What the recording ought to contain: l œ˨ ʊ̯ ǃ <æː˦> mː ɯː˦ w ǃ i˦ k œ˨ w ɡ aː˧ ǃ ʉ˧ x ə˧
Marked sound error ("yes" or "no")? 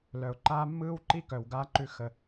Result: yes